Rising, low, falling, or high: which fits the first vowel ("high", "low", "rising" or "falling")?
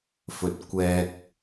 low